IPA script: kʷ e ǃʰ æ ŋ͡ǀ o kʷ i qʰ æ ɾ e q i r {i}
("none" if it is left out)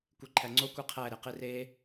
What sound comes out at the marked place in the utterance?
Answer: e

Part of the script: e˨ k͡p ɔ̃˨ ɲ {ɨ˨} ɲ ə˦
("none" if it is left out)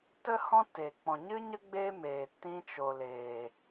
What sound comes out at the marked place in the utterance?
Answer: ɨ˦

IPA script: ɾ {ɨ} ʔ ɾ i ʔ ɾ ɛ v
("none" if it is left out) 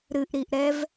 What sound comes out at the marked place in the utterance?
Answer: ɨ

